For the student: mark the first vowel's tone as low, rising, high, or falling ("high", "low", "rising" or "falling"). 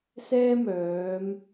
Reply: high